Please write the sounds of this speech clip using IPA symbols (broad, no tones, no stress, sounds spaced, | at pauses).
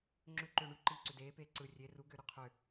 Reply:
ŋ͡ǁ ʏ ǃ ʏː ɳ y ǃ iː ǀ ʏ d eː p eː ǀ ɯ rʲ e r u ɡ ʏː ɾ y qʰ ʏ